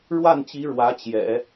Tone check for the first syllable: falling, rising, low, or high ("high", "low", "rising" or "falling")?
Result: falling